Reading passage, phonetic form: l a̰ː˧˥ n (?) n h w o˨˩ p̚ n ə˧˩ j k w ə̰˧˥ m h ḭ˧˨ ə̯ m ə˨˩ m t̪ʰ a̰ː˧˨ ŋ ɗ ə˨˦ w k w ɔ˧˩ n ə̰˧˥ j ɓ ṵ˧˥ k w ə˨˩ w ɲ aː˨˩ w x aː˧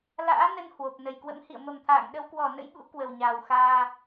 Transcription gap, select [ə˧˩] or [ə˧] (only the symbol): ə˧